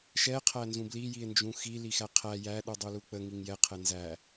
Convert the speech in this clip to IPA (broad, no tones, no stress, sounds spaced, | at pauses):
ʃ ɛ qʰ æ n z ũ b l i j i e̯ n d͡ʒ ũ x i l i x æ qʰ æ j æ ɗ u dˤ u l u k͡p ə ŋ i ŋ j ɛ qʰ ɛ n z æ